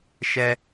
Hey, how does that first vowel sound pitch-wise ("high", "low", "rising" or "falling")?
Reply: high